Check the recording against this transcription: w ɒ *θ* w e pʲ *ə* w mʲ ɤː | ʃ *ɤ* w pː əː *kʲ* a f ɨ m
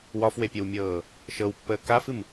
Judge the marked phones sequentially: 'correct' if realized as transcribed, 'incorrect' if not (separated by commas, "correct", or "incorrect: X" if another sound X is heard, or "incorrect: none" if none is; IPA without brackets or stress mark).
incorrect: f, correct, correct, incorrect: k